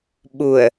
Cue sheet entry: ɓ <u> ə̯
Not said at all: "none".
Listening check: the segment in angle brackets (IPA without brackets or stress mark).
u